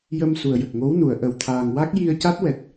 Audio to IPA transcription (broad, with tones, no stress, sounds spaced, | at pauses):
j ə˧ m s u˨˩ ə̯ j ə˨˩ k̚ ŋ o˧˥ w n u˨˩˨ ə̯ ʔ ə˨˩ w t̪ʰ aː˨˩ ŋ w a˦˥ k̚ j i˧ ə̯ c a˦˥ t̚ w ɛ˨˩ t̚